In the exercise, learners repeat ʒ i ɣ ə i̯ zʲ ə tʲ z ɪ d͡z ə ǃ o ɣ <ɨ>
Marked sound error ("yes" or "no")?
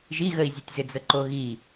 yes